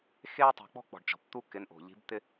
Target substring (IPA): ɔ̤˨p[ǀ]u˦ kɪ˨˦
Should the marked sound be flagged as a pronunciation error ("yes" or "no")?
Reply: yes